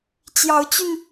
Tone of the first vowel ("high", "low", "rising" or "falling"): rising